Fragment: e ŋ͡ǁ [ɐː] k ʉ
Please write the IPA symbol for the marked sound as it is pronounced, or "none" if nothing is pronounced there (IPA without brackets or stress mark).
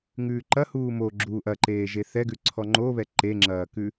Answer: ɐː